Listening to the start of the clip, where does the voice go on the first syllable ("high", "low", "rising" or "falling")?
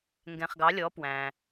low